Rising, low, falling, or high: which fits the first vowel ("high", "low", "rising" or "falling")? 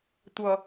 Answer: low